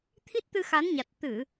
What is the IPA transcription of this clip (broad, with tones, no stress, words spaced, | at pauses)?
t̪ʰi˦˥t̚t̪ɨ˧xa˨˦nɲa˨˩t̚ t̪ɨ˧˩˨